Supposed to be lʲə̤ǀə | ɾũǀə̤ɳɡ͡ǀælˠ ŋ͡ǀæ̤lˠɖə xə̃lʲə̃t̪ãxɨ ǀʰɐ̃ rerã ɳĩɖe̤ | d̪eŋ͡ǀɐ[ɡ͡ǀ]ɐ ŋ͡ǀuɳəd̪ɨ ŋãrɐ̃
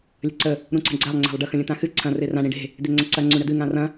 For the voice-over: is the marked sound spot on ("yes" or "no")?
no